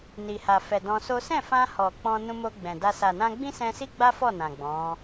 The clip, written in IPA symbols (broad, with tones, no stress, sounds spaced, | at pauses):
n i˨ h a˨ f ɛ˨ d ɔ̃˧ s o˦ s ɛ̃˦˨ f ã˧ h ɔ˨ k͡p ɔ̃˧ n ũ˧ m o˧ ɡ͡b ɛ̃˨ d a˧ s a˨ n ã˧ ɡ͡b ĩ˦ s ɛ̃˧ s i˦ ɡ͡b a˦ f ɔ˦˨ n ã˨ ɡ͡b ɔ̃˨˦